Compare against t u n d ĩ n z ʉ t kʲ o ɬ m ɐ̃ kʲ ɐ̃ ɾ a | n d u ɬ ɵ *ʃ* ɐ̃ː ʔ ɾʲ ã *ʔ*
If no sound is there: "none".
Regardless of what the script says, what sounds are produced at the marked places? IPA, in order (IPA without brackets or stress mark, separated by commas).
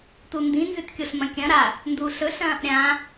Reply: ɬ, none